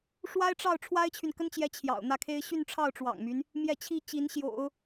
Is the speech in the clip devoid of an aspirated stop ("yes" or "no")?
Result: no